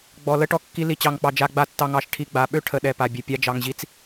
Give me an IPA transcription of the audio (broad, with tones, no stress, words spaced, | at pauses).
ɡ͡bɔ˨ lə˧ʈɔ˨ kːi˧li˨t͡ɕɑ˨ŋk͡pɑ˨ d͡ʒa˧ɡ͡ba˧tːɑ˧ŋɑ˨˦ʃ ʈʰi˧ɡ͡ba˨˦ɓø˦ ʈʰə˨ɗɛ˨ pa˨bʲɘ˨ pʲa˧d͡ʒɑ˨ŋʑi˧t͡s